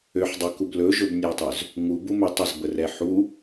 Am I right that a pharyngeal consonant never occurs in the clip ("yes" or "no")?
no